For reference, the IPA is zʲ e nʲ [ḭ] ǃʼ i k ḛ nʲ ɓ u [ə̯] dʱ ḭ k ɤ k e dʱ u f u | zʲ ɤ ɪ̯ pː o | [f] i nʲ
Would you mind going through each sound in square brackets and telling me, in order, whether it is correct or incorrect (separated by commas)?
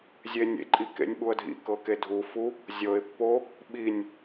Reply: incorrect, correct, incorrect